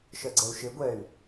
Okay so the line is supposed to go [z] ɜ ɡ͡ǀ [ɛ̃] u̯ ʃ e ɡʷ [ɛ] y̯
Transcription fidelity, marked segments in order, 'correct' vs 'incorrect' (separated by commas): incorrect, incorrect, correct